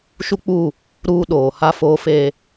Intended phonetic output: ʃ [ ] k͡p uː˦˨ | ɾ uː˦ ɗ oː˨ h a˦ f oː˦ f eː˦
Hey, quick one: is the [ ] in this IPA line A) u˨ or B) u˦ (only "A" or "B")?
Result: B